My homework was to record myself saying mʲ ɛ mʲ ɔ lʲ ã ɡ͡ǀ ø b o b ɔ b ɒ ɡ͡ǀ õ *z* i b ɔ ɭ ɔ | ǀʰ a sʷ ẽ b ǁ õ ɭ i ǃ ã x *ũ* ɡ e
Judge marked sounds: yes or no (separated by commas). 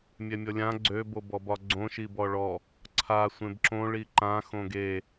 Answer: no, no